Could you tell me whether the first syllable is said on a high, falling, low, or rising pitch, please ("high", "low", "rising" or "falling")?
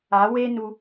rising